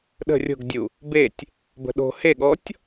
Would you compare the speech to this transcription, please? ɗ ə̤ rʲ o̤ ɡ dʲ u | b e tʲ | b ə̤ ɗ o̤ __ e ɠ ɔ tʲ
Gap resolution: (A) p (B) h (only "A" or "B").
B